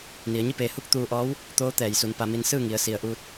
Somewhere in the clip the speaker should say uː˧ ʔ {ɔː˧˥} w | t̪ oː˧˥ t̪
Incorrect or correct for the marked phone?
correct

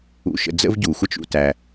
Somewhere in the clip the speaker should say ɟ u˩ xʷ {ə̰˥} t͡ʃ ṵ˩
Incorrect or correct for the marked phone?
incorrect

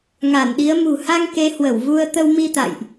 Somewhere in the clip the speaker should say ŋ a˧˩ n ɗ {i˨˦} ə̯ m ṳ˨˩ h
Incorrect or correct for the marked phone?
correct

